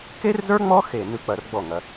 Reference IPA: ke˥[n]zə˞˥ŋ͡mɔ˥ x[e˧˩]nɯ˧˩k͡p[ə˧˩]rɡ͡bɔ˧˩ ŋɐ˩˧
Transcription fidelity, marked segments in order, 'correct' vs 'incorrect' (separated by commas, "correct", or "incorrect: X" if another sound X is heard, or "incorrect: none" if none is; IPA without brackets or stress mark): incorrect: r, correct, incorrect: ɐ˧˩